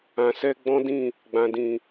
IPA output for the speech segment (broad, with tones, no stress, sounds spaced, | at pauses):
ã˨ s ɛ˧ ɡ͡b ɔ̃˦ d ĩ˦˨ | ɡ͡b ã˨ d ĩ˨